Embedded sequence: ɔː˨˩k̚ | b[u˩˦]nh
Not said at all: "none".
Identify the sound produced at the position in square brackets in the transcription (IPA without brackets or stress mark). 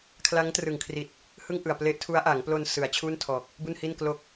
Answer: u˥˩